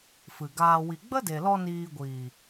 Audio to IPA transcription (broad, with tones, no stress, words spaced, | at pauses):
fɨ˨ɡaː˧ wi˨ɡ͡bə˦de˨lɔ˧ niː˧ɡʷiː˨